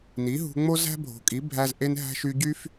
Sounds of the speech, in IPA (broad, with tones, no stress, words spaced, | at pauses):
ni˨˦ɦṳ˧ŋ͡mo˦ zæ̤˦bʱo̤˨kʼi˨˦ bʱæ˧z ʔe˧nɦæ̤˧ʃy˧ɟy˦f